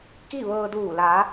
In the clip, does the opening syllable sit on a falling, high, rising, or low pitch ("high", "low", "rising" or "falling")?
falling